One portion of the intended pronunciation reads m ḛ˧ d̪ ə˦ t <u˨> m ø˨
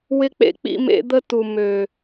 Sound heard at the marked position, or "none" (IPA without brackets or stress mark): u˨